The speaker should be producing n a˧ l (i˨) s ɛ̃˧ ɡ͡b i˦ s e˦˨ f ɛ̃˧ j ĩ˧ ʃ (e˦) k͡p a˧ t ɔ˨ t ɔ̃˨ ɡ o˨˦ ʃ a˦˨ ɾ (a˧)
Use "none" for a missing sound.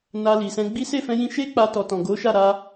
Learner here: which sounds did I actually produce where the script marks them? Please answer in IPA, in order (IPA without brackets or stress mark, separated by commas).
i˨, e˦, a˧